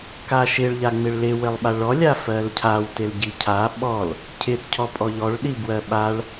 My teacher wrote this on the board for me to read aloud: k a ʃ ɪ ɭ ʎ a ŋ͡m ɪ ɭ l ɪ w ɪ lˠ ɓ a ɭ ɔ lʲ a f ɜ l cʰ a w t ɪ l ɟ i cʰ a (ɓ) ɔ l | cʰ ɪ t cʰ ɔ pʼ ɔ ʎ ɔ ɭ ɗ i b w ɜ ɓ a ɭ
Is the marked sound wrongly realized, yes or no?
no